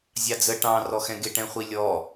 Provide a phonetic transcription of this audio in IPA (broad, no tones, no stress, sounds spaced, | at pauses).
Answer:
zʲ ɑ d͡z ə ʈ ɑ̃ r ɔ x ɛ̃ ɡ ɪ ʈ ɛ̃ χʷ i lʲ ɔ